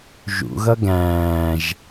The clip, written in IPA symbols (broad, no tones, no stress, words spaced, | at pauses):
ʒṵɣʌ ɡæ̃ːʒ